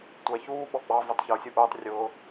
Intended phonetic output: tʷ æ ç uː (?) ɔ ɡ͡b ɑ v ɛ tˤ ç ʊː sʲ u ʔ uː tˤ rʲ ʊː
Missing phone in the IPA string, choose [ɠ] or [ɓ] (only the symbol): ɓ